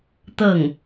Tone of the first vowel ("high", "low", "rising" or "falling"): falling